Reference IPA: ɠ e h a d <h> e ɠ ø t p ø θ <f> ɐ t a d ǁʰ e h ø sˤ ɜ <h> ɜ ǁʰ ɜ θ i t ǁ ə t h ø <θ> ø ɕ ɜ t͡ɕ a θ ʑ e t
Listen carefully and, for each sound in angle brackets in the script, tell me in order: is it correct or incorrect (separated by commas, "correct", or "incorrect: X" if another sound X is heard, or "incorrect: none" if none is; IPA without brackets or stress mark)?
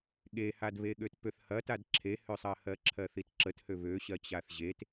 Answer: incorrect: β, incorrect: h, correct, incorrect: β